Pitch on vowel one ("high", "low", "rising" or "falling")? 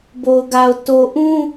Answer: low